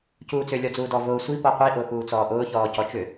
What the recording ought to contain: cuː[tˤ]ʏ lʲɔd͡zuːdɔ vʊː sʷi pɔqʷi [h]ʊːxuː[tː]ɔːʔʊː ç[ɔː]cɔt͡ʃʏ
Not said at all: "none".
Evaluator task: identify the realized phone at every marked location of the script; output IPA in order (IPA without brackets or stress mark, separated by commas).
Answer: t͡s, ʔ, t͡s, ɔː